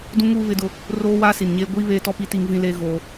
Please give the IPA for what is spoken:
d ũ˦ ŋ uː˦ β ɪ˦ d ʊ˦ | r oː˦ w aː˦ s i˨ n ɲ eː˦ ɡʷ iː˦ β eː˦ t ɔ˦ p i˦ t i˦ ŋ v ĩ˦ l eː˦ ɣ oː˦

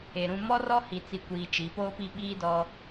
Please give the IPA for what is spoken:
e˨ ɾ ũ˦ m ɔ˦ r ɔ˦ h i˨ t͡s i˨ kʷ iː˨ t͡ʃ i˨˦ p oː˦ p i˦ ɓ iː˦ d ɔ˦

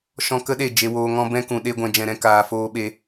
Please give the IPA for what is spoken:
ʃ ɔ̃˦ k ə˦ ɗ e˦˨ d͡ʒ e˧ w oː˧ ŋ ɔ̃˦ b ɛ̃˧ k ũ˨ ɗ e˦ ɡʷ ɛ̃˧ d͡ʒ ɛ̃˧ ɾ ɛ̃˦ k aː˧ f oː˦ ɓ e˦

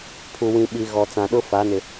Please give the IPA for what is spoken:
pʰ u˨ w ĩ˨ ɓ i˨ ɣ ɔ˨ t͡s ã˨ ɗ ʊ˦ f a˨˦ n ɪ˨

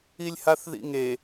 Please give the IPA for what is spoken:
i lʲ h a θ ð ḭ ŋ e

